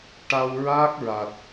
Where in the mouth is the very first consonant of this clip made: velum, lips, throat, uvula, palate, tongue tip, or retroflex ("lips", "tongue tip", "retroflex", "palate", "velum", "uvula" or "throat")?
retroflex